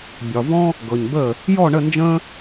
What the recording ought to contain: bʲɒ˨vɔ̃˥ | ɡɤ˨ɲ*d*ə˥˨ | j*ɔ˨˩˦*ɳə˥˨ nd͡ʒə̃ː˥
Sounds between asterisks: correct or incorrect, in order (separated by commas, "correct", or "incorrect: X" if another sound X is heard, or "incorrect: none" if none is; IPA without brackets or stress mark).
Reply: incorrect: b, incorrect: ɔ˥˨